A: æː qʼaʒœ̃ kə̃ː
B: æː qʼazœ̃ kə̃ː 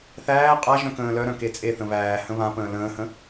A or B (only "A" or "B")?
A